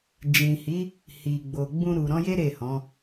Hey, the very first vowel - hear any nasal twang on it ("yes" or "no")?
yes